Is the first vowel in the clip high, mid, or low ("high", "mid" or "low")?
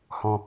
mid